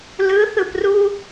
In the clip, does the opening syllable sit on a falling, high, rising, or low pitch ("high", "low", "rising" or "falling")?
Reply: rising